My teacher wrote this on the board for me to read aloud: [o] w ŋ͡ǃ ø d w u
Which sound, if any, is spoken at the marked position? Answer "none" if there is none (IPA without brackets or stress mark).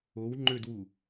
o